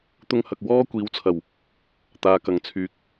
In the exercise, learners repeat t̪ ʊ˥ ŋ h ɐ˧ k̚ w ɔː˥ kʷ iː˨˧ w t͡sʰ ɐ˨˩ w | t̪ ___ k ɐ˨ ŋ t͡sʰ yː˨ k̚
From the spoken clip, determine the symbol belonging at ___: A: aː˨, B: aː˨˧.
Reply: A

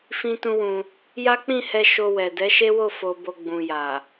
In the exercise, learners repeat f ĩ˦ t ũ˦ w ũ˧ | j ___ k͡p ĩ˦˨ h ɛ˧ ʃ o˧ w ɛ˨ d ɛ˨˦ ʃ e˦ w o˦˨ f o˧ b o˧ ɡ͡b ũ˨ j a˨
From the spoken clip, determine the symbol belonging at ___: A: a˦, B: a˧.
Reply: A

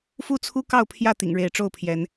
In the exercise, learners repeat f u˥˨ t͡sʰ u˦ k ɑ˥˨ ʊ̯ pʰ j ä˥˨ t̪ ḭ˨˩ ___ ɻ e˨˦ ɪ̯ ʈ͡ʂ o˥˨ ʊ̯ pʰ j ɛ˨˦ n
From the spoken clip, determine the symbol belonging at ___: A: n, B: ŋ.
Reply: B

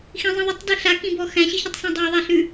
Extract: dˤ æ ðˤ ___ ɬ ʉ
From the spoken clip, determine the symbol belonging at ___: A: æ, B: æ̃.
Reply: A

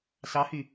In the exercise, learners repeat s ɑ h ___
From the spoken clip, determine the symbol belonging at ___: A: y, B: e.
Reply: A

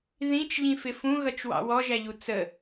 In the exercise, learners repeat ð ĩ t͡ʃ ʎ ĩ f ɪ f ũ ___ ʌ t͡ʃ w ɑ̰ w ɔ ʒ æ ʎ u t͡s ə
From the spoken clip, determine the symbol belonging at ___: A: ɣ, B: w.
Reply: A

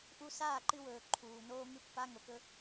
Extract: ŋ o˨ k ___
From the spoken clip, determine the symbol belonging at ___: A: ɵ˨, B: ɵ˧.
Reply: B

